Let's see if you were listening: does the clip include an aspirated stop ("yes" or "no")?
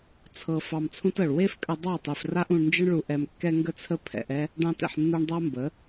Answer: yes